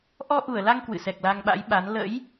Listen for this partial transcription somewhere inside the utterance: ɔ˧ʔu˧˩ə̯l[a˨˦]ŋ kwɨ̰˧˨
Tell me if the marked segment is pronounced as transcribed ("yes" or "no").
no